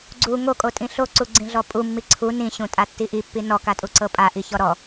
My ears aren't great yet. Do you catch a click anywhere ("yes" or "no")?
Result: yes